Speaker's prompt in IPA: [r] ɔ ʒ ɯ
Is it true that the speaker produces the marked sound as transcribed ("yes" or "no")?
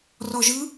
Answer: yes